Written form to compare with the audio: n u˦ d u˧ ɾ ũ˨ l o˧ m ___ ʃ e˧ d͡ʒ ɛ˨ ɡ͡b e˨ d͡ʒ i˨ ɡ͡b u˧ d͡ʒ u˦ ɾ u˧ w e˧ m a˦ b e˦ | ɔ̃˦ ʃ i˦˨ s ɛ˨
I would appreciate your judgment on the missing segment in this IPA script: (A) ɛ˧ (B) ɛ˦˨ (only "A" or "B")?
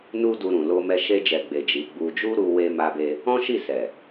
A